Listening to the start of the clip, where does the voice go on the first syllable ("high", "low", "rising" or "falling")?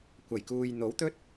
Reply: low